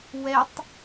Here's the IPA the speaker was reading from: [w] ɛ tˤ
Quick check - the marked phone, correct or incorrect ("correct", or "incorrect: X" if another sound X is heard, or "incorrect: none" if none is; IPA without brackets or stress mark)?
correct